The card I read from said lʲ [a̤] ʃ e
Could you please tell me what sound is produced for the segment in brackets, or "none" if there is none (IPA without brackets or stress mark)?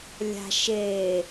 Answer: a̤